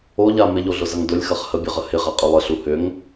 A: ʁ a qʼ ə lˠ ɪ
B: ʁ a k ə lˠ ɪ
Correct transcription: A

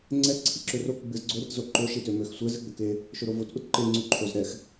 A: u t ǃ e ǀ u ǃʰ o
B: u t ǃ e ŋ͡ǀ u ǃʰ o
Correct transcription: B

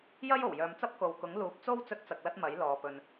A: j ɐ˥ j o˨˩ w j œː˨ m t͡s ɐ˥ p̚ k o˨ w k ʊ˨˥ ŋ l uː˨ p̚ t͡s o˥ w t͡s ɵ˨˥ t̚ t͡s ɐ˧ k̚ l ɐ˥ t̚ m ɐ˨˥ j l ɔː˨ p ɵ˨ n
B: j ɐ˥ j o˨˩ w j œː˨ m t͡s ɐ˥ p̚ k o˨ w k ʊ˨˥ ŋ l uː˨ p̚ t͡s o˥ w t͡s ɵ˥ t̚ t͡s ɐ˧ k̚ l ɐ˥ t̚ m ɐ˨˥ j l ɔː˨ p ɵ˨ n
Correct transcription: B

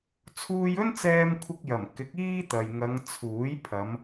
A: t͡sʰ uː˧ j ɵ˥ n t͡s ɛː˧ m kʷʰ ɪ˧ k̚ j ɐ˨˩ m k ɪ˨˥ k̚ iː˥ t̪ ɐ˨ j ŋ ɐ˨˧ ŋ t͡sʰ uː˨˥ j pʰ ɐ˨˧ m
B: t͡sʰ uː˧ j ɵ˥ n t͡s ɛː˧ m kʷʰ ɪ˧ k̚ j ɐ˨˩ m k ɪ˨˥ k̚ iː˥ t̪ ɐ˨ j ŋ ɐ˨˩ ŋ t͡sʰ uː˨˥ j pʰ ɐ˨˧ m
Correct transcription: A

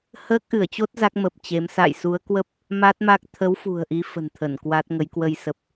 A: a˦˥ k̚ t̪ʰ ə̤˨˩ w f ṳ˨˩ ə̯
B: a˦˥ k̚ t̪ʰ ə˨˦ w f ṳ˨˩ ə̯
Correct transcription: B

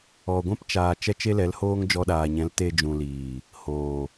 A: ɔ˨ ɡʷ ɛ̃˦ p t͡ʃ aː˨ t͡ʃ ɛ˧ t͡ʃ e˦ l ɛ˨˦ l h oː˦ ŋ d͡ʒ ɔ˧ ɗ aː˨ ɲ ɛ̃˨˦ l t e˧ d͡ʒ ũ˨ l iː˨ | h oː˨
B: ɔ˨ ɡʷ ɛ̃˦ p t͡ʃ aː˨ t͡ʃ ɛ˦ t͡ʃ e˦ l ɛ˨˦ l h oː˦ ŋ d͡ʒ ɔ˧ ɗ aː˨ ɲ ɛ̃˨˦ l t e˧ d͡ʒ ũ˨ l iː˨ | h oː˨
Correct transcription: B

